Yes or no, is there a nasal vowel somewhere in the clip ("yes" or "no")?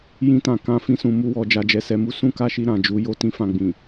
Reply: yes